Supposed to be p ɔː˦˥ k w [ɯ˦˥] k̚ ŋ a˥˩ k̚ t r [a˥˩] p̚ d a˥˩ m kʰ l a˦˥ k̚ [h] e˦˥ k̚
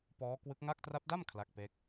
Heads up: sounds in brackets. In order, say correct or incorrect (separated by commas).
correct, incorrect, incorrect